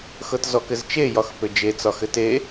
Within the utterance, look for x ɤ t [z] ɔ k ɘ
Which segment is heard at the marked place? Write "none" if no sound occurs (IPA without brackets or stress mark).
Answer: z